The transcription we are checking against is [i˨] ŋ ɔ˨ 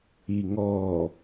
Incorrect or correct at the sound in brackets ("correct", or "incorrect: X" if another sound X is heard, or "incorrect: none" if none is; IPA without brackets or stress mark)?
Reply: correct